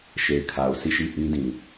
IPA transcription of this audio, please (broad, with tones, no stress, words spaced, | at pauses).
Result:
ʃe˨ɪ̯kʰa˨ʊ̯sʰi˦˨ ʃi˦˨ ʔĩ˦dĩ˨